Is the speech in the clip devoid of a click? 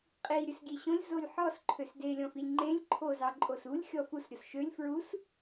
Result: no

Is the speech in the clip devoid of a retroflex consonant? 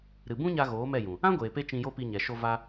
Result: yes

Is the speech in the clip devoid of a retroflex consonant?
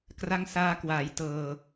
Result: yes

